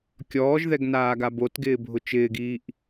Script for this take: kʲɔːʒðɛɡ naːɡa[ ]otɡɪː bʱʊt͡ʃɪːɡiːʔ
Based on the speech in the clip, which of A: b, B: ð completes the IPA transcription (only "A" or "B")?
A